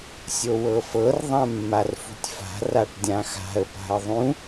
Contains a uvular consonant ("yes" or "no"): no